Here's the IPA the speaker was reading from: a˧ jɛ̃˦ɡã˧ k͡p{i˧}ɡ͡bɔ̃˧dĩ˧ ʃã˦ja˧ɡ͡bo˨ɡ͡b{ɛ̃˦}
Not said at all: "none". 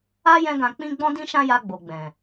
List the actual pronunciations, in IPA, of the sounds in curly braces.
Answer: ĩ˧, ɛ̃˨

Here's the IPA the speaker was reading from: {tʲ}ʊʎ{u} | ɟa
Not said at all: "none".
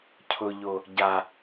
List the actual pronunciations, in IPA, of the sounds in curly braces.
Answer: cʰ, o

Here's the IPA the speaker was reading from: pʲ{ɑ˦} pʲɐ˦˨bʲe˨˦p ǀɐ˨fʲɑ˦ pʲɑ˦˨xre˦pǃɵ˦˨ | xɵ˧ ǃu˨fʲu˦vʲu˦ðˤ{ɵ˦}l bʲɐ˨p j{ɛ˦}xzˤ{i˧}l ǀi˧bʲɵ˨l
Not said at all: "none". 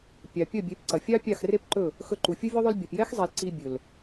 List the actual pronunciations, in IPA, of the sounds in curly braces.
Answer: ɑ˨, ɵ˦, ɛ˦, i˨

